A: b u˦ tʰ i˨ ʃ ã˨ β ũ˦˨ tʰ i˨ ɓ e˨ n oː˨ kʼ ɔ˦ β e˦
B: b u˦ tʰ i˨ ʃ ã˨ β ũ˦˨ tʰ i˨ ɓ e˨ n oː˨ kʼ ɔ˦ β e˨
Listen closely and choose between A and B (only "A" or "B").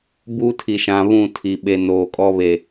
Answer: B